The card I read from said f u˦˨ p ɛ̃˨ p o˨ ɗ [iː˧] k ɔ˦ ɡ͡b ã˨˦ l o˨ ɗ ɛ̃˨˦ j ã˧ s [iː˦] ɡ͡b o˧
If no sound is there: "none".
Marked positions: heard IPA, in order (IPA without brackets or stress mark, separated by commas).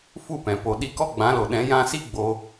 i˧, i˦